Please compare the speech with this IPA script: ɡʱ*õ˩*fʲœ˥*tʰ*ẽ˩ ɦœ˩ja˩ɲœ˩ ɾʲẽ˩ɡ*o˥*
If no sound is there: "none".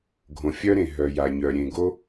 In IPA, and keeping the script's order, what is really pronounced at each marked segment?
õ˩, ɾ, o˥

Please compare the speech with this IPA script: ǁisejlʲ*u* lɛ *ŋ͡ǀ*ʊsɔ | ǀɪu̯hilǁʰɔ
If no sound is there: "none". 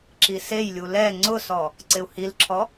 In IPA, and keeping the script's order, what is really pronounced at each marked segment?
u, ŋ͡ǀ

